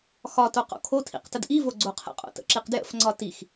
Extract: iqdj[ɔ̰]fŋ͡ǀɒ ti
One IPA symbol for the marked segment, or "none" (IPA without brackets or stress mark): ə̰